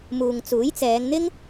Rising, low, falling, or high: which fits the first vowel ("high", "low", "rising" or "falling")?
low